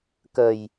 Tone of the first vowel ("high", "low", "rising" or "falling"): low